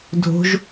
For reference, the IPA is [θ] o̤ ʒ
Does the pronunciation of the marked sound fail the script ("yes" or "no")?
yes